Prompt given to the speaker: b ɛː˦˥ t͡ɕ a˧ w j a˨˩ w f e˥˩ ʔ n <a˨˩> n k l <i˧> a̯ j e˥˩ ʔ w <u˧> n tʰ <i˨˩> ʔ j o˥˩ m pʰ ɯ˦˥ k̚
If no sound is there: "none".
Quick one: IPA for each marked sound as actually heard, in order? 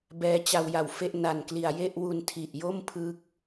a˨˩, i˨˩, u˧, i˨˩

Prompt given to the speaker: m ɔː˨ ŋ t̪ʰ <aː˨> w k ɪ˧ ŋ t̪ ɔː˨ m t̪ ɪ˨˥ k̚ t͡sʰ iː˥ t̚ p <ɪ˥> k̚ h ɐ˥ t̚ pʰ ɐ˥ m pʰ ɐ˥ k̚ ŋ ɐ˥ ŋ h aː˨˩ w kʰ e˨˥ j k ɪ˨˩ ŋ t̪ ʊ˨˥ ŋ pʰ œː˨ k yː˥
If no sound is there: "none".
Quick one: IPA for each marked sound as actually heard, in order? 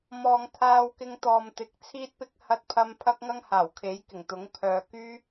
aː˧, ɪ˥

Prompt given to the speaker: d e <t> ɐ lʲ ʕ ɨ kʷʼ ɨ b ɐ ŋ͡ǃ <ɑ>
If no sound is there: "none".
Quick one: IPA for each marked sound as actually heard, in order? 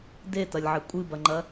t, ɐ

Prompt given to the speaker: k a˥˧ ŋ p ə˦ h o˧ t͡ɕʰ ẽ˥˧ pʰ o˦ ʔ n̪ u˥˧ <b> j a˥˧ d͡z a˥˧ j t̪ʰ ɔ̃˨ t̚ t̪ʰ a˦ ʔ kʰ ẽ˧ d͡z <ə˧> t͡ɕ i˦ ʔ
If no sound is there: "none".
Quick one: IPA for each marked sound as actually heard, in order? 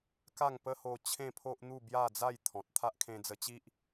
b, ə˧

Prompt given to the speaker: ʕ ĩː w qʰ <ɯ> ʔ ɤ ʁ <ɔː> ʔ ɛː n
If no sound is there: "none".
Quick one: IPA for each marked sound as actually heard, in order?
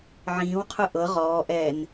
ɯ, ɔː

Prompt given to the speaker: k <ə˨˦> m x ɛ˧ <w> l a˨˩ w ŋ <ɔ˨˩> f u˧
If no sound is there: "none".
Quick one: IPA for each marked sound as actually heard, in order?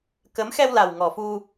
ə˨˦, w, ɔ˨˩

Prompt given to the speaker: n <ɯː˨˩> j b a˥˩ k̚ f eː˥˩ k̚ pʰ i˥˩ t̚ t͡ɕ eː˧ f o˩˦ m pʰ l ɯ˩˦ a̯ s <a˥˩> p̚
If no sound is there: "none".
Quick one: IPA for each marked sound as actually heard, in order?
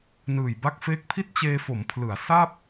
ɯː˨˩, a˥˩

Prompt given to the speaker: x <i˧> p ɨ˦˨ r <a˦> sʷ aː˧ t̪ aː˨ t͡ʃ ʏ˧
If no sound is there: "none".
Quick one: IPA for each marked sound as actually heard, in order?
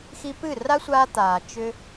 i˧, a˦

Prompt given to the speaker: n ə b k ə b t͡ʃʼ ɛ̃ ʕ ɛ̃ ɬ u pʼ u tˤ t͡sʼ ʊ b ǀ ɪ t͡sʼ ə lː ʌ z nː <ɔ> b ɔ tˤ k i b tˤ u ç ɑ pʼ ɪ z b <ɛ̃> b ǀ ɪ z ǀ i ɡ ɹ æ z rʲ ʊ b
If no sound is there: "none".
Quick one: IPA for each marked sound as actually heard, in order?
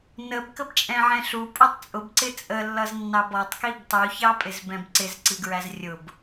ɑ, ɛ̃

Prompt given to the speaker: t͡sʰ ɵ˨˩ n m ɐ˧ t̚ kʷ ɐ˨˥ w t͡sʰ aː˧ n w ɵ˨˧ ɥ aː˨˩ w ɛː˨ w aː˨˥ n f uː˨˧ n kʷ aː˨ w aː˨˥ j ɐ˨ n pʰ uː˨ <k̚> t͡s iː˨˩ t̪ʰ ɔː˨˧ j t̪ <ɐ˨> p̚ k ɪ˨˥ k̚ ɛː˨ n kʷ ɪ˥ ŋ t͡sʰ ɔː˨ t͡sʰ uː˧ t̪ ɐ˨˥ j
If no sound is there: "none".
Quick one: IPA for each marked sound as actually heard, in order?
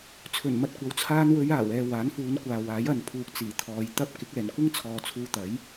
k̚, ɐ˥

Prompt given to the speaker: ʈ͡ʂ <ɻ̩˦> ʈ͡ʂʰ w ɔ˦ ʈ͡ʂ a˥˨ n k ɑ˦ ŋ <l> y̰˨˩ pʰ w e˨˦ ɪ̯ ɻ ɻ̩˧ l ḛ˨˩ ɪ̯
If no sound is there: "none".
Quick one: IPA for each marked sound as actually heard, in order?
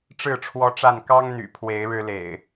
ɻ̩˥˨, n̪

